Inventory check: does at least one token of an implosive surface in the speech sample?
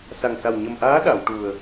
yes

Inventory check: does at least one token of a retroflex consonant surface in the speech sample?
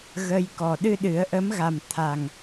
no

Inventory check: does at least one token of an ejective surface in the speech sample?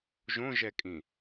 yes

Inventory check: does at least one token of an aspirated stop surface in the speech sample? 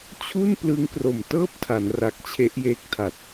yes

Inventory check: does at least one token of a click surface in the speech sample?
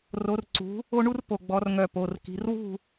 yes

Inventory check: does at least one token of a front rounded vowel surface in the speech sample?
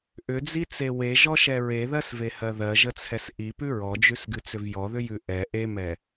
yes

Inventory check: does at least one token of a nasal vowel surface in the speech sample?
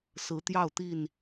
no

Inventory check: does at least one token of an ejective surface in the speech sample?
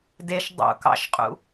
yes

